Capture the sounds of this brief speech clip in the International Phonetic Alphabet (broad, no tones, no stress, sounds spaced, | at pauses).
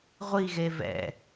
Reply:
ʁʷ i ɣ e v ɛ̰